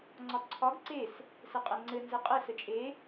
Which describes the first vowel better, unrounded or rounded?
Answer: rounded